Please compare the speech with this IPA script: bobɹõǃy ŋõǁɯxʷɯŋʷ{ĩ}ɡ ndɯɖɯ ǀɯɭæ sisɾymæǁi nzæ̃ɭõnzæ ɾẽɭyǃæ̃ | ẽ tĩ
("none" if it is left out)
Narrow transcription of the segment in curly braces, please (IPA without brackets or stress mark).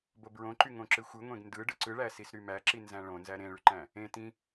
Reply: ẽ